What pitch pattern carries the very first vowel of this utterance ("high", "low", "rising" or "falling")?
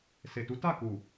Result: low